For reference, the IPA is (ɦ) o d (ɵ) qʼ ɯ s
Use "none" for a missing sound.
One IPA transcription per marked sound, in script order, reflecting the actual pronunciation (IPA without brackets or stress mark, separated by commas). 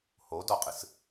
h, ɔ